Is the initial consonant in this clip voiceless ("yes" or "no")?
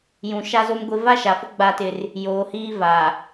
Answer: no